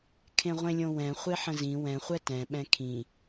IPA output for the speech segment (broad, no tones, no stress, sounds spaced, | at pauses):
kʰ ẽ ʁʷ ẽ lʲ õ w ɛ̃ χʷ e ħ ə̃ z ĩ w ɛ̃ χʷ ɛ t ɛ̃ ɓ ɛ̃ kʰ ĩ